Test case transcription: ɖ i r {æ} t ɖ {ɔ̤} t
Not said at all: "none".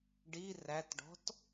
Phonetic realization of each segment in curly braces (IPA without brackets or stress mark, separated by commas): æ, ɔ̤